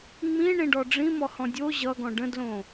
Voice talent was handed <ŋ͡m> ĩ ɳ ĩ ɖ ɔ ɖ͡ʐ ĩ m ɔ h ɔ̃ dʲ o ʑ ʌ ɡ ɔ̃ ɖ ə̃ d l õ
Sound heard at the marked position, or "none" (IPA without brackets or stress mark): ŋ͡m